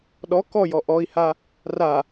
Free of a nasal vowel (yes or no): yes